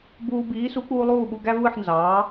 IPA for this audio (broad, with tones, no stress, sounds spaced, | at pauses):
b uː˧ b iː˩˥ s u˩˥ k͡p uː˧ lˠ uː˥˩ ɓ u˧ ɡ æ˥ v ɯ˥˩ ħ n z ɑː˩˥